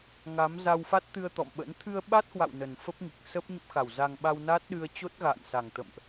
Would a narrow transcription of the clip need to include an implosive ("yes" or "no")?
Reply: yes